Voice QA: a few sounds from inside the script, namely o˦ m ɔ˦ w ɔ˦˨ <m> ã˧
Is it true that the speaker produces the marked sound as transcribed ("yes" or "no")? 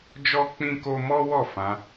no